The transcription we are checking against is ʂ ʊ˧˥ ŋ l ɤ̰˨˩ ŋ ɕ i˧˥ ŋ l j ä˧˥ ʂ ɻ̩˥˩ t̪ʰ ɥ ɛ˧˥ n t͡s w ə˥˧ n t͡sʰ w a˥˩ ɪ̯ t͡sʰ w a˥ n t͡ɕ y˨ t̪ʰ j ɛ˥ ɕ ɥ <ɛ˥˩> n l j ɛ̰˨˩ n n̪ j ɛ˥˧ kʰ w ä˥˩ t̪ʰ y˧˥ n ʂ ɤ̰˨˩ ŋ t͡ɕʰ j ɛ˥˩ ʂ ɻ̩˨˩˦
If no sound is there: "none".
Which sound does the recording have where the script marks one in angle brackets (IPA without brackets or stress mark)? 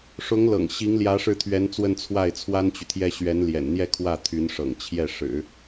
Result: ɛ˧˥